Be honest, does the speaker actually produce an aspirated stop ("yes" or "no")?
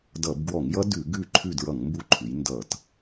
yes